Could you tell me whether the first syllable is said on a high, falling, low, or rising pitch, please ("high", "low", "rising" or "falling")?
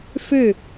falling